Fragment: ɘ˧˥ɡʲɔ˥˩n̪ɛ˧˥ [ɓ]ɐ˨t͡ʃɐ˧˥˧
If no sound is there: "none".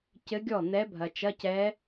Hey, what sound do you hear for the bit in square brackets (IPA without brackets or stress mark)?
bʱ